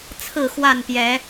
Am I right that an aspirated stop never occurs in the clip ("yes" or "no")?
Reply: no